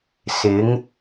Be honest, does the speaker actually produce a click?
no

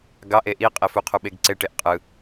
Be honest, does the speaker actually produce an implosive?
yes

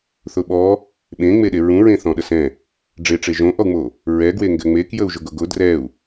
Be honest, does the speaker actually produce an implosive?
yes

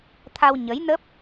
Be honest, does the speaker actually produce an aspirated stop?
yes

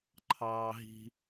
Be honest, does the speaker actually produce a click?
yes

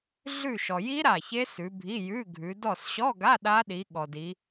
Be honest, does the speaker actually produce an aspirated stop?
no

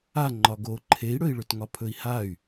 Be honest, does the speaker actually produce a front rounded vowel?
yes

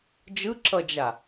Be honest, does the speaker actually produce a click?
yes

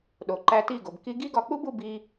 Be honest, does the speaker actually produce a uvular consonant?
no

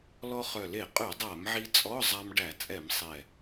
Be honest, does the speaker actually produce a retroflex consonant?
yes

